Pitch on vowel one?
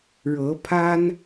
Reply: rising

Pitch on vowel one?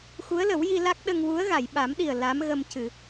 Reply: rising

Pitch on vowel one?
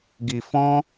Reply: low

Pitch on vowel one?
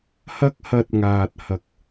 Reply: high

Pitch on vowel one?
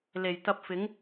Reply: low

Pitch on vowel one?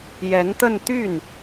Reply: rising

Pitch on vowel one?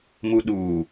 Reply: low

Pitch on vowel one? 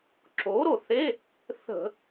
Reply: rising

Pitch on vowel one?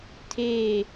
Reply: falling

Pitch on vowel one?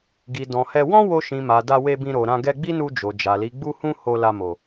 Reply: low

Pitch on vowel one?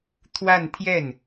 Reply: falling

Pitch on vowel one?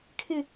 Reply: high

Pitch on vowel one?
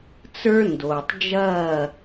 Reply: high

